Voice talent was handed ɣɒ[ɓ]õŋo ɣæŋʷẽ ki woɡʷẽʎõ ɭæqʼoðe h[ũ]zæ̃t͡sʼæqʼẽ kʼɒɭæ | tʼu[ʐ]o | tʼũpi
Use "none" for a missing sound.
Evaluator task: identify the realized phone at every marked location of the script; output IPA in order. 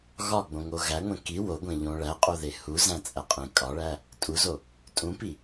ɡ͡b, u, z

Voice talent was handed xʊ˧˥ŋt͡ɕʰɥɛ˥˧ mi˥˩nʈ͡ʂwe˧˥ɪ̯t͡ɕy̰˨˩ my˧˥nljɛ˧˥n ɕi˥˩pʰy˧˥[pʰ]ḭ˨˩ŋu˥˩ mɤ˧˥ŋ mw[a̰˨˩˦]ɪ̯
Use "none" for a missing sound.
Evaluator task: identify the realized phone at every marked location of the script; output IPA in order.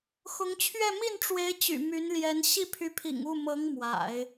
pʰ, a̰˨˩˦

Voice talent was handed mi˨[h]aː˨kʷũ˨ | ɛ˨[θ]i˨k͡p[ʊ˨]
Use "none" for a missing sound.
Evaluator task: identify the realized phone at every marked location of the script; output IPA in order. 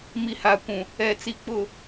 h, t͡s, ʊ˨

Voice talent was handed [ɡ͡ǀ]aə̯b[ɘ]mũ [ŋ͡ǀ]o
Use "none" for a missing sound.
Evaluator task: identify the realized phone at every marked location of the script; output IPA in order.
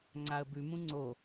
ŋ͡ǀ, ʉ, ŋ͡ǀ

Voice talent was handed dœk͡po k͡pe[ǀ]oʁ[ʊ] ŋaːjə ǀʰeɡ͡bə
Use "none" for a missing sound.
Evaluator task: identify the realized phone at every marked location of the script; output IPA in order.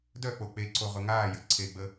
ǀ, ʊ

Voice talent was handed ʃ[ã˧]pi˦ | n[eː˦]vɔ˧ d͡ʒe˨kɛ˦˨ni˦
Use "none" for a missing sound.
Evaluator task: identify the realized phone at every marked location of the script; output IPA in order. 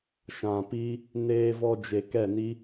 ã˨, eː˧

